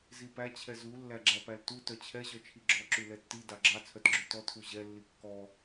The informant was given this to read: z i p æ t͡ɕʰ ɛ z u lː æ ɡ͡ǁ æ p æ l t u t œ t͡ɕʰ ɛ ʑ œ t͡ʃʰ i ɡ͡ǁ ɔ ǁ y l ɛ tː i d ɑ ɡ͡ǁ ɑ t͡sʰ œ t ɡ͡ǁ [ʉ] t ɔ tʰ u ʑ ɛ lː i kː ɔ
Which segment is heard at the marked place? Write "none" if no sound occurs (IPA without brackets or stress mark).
ʉ